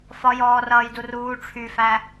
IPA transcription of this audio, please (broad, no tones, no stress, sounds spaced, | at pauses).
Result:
f ɒ j ɔː r ʌː j d u r uː ʈ͡ʂʰ y f æ